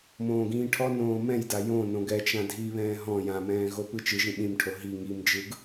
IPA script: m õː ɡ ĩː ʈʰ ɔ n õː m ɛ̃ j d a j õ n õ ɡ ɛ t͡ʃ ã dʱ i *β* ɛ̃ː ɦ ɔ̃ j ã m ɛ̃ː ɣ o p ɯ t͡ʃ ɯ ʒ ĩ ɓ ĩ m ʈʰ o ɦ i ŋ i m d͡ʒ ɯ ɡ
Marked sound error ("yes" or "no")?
no